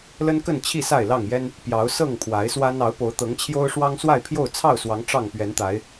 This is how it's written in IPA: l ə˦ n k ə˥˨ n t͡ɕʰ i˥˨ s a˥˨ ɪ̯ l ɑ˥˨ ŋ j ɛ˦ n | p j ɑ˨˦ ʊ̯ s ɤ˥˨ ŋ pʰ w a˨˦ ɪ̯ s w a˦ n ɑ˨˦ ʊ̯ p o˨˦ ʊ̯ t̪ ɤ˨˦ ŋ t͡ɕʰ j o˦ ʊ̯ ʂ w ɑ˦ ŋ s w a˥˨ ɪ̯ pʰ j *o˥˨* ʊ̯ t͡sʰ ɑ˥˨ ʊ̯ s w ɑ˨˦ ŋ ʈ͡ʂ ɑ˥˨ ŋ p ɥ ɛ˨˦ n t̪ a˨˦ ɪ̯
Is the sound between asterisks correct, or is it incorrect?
correct